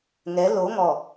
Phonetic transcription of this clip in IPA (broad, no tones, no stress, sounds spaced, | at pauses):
ŋ ɛ l o ŋ ɔ